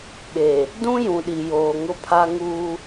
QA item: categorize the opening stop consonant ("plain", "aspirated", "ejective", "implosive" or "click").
implosive